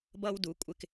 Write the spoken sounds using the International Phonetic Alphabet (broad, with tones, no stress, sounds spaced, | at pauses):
b ʌ˧ w d u˨˦ kʷʼ ɪ˧ k